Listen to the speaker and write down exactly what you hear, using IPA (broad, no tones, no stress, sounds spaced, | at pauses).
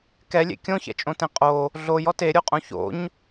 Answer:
k ɛ lʲ ḛ kʲ õ ç ɛ̰ t͡ʃʼ õ t ẽ qʼ o | ɮ o j ɔ t e ɾʲ o qʼ õ ç o̰ ɲ